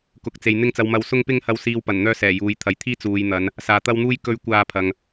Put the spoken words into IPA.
kʊ˨˥k̚t͡se˨j n̪ɪ˧ŋt͡sɐ˨wmɐ˨˧w sʊ˧ŋpɪ˧ŋhɐ˨˧wsiː˨w pɐ˨˩nn̪œː˧ sɛː˨˩juː˨jt̪ʰɐ˨j t̪ʰiː˥ t͡suː˨jn̪ɐ˨˧n | saː˨t̪ɐ˥wn̪uː˥j kɵ˨˧ɥ kʷaː˧pʰɐ˨ŋ

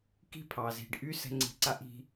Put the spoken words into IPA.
ki̤˦pʰɑ˨zi̤˨ɖʔy˦ sɛ̤˥ŋ͡ǀi̤˦ ǀa˥ʔi̤˦

